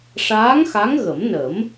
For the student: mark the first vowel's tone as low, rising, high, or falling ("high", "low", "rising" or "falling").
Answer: rising